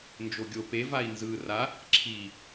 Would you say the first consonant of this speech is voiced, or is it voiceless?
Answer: voiced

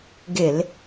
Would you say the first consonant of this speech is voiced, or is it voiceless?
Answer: voiced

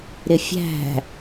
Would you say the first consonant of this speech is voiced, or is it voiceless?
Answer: voiced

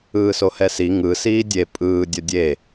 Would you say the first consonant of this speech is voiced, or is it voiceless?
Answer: voiceless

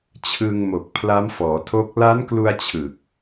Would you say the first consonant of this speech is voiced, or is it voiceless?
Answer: voiceless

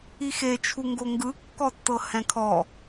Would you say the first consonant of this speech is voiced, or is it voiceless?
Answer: voiceless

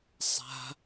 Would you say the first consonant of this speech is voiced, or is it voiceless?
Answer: voiceless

